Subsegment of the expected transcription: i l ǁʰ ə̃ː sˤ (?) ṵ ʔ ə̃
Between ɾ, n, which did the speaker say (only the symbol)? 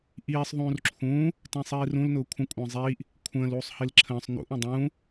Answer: n